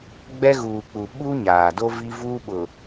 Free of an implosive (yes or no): no